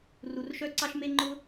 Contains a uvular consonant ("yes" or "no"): no